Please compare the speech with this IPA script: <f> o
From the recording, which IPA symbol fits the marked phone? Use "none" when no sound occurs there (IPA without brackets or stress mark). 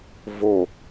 v